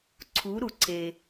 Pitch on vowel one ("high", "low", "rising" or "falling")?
rising